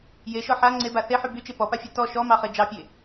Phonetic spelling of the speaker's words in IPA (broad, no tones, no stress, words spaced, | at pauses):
jeʃɔ ħa ŋ͡ǀeba θeħy byt͡ʃe pɔpafʲɑ tɔ ʃɔmɑχe d͡ʒɑpʲe